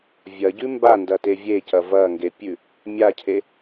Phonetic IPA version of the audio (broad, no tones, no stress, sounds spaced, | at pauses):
vʲ ɐ ɟ ʉ m b a n d ɐ t e vʲ e c ɐ v ɐ ŋ ɡ e pʲ ʉ | mʲ a cʰ e